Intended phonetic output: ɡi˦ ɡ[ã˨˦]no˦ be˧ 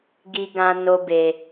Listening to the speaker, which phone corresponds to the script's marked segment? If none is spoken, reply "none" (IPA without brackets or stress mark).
ã˦